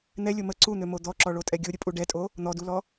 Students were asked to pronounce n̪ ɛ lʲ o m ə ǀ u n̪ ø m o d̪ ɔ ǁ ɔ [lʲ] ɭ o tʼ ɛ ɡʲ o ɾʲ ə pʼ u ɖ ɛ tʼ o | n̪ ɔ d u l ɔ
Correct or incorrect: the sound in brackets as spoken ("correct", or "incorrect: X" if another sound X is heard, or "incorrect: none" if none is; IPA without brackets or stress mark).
incorrect: none